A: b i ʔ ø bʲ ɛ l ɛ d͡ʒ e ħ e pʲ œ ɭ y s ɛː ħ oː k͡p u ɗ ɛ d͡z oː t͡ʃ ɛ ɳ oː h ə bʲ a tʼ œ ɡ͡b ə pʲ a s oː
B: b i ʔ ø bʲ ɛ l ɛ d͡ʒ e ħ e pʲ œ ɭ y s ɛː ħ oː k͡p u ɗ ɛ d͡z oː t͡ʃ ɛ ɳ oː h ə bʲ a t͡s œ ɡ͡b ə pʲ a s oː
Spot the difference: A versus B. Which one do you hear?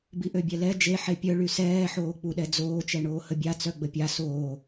B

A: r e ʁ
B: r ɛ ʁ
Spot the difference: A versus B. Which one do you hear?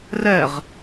B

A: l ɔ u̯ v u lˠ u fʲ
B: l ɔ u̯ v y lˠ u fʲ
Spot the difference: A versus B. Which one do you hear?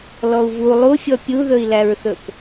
A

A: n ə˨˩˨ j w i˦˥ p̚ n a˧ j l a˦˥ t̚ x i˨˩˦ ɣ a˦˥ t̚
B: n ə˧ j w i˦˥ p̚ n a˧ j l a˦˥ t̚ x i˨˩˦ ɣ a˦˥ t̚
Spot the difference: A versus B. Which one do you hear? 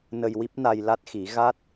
B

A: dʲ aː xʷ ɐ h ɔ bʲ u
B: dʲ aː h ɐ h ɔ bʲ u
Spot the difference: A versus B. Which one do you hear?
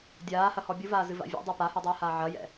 B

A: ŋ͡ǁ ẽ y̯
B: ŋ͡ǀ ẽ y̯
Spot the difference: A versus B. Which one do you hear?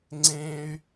B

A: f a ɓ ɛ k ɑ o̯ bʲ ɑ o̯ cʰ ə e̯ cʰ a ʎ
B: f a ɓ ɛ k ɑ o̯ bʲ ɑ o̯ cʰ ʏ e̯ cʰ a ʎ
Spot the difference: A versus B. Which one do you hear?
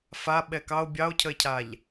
A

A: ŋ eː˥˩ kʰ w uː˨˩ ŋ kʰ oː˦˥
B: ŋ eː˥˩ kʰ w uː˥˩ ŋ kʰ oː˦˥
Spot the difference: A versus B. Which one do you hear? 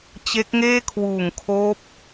A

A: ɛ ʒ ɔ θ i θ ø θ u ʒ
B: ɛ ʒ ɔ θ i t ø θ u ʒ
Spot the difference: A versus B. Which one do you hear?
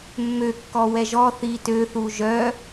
B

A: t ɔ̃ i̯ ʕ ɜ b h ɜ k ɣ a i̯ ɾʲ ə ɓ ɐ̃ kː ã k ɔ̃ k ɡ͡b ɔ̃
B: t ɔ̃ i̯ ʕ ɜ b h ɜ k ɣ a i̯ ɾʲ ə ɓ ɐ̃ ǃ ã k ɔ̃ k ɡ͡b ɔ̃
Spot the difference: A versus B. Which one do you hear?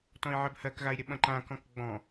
B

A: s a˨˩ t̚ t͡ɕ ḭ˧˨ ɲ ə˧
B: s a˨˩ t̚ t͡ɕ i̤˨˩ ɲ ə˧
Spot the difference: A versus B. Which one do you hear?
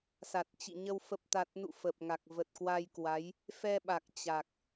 A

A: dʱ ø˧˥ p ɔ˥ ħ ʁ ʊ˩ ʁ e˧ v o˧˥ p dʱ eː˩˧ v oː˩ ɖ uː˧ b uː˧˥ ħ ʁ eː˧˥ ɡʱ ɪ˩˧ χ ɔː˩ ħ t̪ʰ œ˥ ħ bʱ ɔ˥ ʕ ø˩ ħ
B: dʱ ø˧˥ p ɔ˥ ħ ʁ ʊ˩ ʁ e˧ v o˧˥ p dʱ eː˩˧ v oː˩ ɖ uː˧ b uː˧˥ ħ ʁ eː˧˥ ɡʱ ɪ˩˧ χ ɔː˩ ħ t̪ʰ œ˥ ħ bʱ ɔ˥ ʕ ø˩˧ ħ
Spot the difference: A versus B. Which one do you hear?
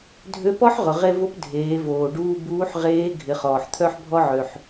A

